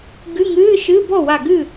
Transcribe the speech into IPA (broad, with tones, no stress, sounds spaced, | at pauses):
ɡ ɨ˧˥˧ ŋ ɨː˧˥˧ ʃ ɨ˧˥˧ b ɔ˥˩ w a˧˩ ɡ ɨ˥˩